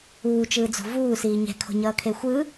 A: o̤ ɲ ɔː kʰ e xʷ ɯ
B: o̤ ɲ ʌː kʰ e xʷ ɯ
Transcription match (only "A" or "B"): B